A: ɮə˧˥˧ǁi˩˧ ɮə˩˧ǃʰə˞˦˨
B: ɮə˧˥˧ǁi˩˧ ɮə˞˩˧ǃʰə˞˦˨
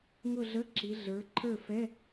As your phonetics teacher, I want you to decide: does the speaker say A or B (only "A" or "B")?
B